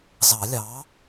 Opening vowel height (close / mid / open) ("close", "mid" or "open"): open